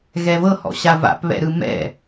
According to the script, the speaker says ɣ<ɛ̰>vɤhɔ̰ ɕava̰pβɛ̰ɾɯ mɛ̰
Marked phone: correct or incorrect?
incorrect: ɛ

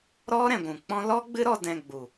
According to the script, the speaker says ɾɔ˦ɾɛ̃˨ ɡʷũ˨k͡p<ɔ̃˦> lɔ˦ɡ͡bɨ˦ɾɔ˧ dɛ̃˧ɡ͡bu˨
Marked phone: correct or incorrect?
correct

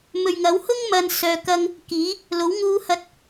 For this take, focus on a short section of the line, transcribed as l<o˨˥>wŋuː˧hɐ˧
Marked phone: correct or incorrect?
correct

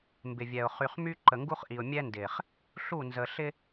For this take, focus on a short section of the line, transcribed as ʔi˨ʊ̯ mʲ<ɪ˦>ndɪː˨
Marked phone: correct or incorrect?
incorrect: ɛ˦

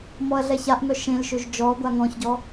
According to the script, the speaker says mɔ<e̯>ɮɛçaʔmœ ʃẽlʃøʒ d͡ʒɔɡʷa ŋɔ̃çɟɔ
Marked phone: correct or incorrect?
incorrect: ɐ̯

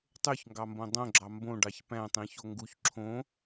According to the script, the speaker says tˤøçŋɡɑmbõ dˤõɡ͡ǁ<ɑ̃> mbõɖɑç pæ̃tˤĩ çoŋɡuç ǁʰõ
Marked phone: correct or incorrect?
incorrect: ɑ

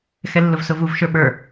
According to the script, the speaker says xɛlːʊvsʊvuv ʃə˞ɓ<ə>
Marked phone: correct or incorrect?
incorrect: ə˞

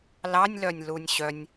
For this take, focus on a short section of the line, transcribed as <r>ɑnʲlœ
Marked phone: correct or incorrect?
incorrect: l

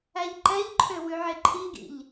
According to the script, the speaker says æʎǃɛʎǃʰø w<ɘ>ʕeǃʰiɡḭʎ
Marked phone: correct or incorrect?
incorrect: ʉ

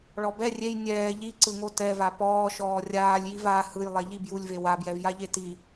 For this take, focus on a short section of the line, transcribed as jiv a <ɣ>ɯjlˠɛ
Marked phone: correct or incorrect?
incorrect: h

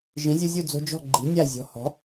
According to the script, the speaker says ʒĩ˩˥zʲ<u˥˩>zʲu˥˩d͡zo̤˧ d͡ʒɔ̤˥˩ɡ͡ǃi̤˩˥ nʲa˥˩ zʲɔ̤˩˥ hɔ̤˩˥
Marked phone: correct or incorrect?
incorrect: u˧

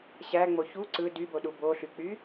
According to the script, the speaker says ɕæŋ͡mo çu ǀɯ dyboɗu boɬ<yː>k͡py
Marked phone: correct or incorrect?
incorrect: y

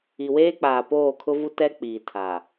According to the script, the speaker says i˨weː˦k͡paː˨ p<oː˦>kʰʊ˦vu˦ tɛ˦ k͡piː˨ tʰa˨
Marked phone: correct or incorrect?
incorrect: oː˦˨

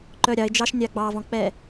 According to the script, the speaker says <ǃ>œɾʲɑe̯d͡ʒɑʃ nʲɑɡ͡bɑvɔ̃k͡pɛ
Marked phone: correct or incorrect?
correct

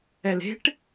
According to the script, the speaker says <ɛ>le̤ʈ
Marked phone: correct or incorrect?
correct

